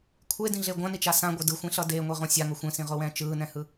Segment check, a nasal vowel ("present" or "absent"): present